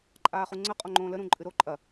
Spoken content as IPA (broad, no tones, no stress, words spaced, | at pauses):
ǃʼaːχuŋ͡ǀə qʼɔŋ͡ǃõːlə ɾũǃʼɨɾo ǃʼɐ